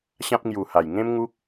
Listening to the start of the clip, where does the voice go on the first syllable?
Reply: high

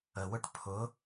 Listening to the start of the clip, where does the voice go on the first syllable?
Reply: low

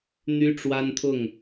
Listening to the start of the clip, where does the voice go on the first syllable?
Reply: high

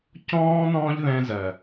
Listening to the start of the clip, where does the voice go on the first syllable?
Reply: high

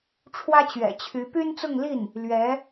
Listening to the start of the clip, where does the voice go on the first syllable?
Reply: high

